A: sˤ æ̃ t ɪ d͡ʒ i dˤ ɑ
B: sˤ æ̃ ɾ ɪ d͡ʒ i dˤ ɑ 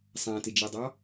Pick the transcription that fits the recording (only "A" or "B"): A